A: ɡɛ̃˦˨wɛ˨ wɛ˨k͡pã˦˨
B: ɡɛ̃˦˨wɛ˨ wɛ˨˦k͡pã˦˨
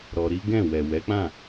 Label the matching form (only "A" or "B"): B